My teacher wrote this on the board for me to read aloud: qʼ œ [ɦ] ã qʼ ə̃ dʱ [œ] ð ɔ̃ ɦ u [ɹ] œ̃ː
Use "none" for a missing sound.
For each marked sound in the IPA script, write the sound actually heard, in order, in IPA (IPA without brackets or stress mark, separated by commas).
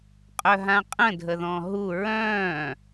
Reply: ɦ, ə, ɹ